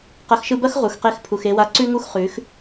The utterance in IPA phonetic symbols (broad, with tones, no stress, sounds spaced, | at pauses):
q ɐ˨˦ x ʃ ɯ˧ b ɐ˦ x ʁ u˨ x q e˧ x pʰ u˨ x e˧ w a˧ ǀ ʉ˦ ŋ u˦ x χ ʉ˨˦ x